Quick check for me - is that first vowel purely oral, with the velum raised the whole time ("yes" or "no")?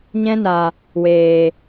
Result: no